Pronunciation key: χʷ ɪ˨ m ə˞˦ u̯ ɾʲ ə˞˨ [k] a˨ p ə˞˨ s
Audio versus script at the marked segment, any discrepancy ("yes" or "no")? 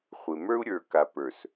no